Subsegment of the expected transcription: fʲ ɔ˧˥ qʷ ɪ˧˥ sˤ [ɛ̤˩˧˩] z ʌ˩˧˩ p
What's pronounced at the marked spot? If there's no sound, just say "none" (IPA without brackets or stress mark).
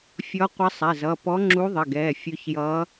ɛ˩˧˩